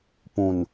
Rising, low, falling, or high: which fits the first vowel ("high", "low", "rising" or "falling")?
low